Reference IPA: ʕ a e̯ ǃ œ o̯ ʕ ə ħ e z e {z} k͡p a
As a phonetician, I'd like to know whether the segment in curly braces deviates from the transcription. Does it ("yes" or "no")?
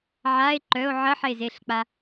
yes